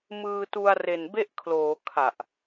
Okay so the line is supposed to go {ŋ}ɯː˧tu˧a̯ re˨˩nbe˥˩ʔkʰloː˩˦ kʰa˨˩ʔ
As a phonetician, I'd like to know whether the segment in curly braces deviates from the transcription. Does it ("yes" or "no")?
yes